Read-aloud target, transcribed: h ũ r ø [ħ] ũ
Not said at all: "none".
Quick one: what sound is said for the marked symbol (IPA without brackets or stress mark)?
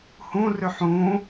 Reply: ħ